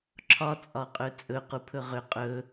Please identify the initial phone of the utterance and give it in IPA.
ǁʰ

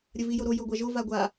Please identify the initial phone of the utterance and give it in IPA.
ɾʲ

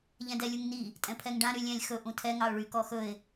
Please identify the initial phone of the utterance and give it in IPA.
ʎ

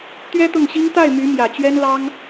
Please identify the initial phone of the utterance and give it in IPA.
t̪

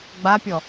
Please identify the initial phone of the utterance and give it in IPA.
ɡ͡b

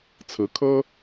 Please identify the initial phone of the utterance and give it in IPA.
t͡sʰ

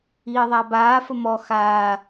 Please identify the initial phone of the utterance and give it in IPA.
iː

